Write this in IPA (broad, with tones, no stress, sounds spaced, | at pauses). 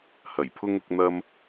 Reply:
h ɐ˨˩ j pʰ ʊ˥ ŋ ʊ˨˥ k̚ n̪ ɐ˥ m